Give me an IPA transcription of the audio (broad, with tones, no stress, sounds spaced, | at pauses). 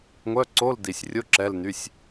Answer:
ŋʷ œ˧˥˧ ǀ o˧˥˧ l d i˨˩ sʲ rʲ o˧˥˧ ǁ ɛ˧˥˧ l n y˧˥˧ sʲ